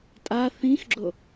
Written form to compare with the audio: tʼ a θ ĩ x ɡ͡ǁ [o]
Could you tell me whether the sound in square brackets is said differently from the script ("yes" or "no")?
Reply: no